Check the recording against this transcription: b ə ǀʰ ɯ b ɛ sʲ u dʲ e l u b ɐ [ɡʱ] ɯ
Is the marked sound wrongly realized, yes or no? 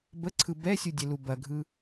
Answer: no